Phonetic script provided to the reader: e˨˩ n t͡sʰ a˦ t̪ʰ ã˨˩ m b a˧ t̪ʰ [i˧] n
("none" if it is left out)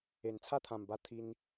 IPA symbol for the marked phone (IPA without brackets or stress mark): i˧